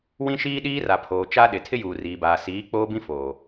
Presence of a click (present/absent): absent